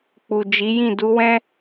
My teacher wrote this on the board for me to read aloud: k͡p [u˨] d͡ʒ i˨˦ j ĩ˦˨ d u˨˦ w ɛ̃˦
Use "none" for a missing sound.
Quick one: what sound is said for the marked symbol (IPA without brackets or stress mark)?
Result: u˨